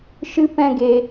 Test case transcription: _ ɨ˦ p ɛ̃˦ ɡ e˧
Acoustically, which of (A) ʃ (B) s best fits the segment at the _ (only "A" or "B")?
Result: A